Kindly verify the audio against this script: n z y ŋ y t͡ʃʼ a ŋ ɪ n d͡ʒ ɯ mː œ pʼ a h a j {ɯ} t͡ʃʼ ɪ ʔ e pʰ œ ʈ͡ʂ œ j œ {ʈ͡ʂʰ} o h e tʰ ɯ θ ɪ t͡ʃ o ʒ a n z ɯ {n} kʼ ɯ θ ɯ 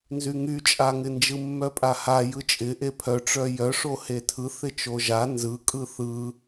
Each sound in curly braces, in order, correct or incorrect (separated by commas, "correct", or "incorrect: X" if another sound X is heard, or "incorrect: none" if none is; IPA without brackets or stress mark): correct, incorrect: ʂ, incorrect: none